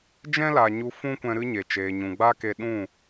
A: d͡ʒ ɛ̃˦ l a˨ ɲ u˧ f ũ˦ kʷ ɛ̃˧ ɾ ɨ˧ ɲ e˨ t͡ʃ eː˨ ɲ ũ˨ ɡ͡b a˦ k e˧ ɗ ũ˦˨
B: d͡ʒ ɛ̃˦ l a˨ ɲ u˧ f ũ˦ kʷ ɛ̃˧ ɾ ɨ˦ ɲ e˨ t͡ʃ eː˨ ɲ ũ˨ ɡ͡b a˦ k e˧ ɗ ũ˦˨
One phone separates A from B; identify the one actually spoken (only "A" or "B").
B